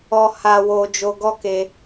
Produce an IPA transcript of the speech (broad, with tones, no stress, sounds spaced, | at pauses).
ɔ˧ h a˧ w o˧ d͡ʒ o˧ ɡ ɔ˦ k e˦